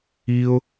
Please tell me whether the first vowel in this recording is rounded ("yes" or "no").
no